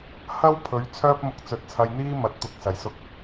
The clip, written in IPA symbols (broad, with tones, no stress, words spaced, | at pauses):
hɐ˥w pʰɵ˨˥ɥ t͡sʰœː˥p̚mʊ˧k̚ t͡sɵ˨˥t̚t͡sʰɐ˧jn̪iː˥ mɐ˨˥t̚t̪ʊ˨˥k̚ sɐ˨˩jsʊ˧k̚